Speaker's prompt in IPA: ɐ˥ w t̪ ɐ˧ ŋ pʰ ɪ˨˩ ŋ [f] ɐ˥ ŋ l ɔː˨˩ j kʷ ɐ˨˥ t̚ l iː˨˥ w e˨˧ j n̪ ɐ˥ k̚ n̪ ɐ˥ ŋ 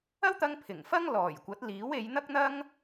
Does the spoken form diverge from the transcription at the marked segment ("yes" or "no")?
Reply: no